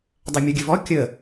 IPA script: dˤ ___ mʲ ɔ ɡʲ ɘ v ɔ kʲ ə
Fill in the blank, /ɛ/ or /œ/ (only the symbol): ɛ